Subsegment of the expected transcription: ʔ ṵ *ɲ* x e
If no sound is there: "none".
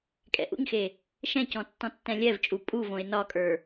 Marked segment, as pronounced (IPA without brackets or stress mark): ɲ